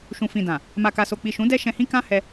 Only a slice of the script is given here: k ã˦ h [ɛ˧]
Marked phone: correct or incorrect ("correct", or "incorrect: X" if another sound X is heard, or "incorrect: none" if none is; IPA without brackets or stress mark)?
correct